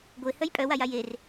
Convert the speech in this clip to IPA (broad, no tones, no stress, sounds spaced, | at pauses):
ɡʷ e h œ j pʼ œ w a j a j e r